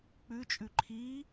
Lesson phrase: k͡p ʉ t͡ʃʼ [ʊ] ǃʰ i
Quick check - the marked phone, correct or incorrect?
incorrect